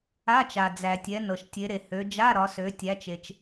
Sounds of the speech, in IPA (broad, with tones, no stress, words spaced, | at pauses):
a˧˥˧t͡ʃa˩ d͡zæ˩tʲɛ˩˧ nɤ˩ʃtʲe˩˧ɾe˩ hø˩˧d͡ʒa˧˥˧ɾɒ˩˧sø˩˧ tʲæ˩˧t͡ʃe˩t͡ʃ